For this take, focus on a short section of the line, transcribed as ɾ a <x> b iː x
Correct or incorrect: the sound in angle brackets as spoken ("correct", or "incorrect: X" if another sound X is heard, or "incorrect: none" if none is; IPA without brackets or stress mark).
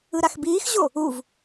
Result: correct